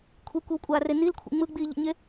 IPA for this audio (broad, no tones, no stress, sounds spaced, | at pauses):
kʷʰ i kʷ i w kʷʼ aː r e n i l kʷʰ ḭ ŋ͡m ɯ ɡ͡b iː ʎ ḭ ɲ e